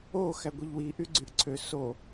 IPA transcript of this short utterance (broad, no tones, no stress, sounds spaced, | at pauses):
o x æ ɡʷ e ʎ w i ʔ y ɡ͡ǀ y ʔ ǀʰ ø s o